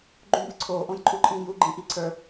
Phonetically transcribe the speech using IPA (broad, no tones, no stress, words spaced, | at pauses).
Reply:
ɡ͡ǃũbɨǀʰoː ʔõjǃʼuǃʼĩːju ɡ͡ǃĩʔiǀʰə˞